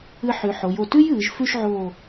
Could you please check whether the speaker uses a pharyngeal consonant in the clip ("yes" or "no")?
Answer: yes